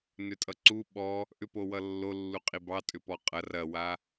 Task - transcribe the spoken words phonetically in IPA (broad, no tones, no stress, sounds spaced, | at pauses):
n ʏ tʼ ʌ ǀ u ɓ ɔ | ʔ ʏ p o w ʌ lː o lː u qʼ i b ɑ tʼ ʏ p ɔ qʼ ɐ r ɐ w a